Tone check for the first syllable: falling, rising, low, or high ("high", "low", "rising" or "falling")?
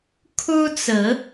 high